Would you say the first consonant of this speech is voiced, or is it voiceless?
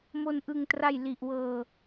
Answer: voiced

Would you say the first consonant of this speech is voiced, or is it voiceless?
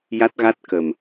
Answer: voiced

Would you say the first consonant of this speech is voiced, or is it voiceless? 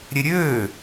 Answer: voiced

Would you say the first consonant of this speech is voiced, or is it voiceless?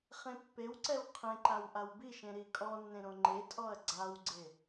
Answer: voiceless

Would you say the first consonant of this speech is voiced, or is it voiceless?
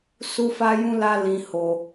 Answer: voiceless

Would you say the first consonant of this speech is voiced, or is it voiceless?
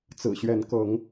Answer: voiceless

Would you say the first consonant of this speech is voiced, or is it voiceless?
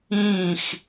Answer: voiceless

